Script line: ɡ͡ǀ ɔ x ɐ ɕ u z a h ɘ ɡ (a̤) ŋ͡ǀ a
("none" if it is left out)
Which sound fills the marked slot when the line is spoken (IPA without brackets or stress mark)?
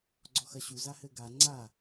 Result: a